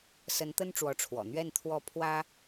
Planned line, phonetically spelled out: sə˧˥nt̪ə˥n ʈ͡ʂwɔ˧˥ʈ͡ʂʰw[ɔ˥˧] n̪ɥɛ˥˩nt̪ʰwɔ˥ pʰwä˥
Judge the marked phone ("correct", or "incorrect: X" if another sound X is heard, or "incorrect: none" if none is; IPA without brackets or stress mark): incorrect: ɔ̰˨˩